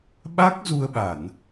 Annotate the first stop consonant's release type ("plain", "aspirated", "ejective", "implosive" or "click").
implosive